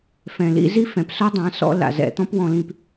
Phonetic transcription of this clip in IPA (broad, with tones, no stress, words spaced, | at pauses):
fɛ̃˨lḭ˧ zi˦fɛ̃˨pso˦ dˤã˨˦sɔ̰˧ la̰˨zɛ̰˨t̪ɔ̃˦p wɔ̃˧lĩ˧p